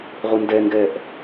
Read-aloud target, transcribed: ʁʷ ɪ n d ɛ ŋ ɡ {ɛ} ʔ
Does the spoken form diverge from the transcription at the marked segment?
no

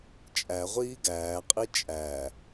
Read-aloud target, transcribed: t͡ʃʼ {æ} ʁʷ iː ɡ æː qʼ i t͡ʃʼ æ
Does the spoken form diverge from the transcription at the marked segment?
no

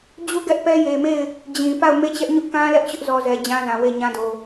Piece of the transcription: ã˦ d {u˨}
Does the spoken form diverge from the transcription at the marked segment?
yes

